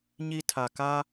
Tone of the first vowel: high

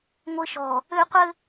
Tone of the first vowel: high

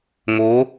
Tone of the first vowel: rising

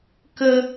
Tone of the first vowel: high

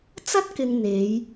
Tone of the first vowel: high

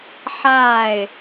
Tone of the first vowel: falling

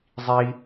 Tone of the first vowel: high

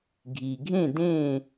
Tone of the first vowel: low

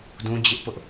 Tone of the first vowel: high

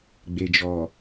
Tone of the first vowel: low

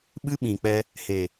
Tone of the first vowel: high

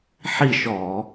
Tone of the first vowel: falling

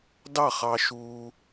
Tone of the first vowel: falling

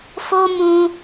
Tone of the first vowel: high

